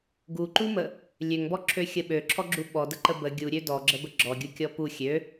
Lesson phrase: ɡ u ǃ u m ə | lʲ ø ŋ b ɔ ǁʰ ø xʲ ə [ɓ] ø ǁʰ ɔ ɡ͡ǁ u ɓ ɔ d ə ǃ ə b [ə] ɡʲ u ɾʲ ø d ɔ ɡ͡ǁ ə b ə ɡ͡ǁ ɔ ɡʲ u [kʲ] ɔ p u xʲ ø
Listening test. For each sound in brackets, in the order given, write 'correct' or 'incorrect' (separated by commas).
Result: correct, correct, correct